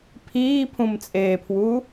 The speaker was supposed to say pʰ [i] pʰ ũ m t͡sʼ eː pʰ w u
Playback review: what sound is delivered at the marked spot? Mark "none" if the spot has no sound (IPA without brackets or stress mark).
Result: iː